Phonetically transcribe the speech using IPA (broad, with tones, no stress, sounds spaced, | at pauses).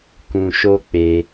k ũ˧ ʃ o˦ k͡p e˧